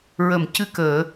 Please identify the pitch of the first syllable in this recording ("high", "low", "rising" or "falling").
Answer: low